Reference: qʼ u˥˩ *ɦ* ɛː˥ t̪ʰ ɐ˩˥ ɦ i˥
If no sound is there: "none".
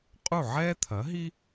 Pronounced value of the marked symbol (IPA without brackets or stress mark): ʕ